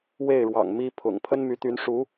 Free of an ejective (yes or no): yes